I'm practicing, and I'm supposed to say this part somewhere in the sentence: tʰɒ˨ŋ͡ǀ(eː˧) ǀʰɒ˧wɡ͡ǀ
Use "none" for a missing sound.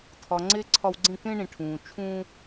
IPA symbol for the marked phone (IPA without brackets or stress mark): e˧